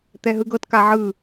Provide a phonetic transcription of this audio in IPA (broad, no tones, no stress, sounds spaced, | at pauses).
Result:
t̪ ɛ ɦ ɯ ɡ ɤ t k a ʕ ɯ